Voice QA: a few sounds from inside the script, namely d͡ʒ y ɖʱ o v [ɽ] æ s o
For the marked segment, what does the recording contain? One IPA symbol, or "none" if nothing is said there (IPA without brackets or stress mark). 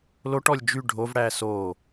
ɽ